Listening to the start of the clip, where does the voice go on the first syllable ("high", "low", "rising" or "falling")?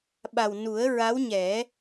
low